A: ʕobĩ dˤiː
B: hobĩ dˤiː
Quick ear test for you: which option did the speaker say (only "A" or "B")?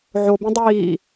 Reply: A